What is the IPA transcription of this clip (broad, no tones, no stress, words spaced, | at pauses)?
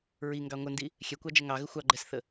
ɹiŋɡɑ ŋʷəndi | xʲɛkʷɑd͡ʒə ŋɑɣə xʷɑɡ͡ǃɛsθə